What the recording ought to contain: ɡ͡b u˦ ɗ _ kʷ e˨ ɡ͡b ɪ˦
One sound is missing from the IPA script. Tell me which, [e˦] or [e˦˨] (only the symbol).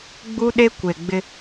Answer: e˦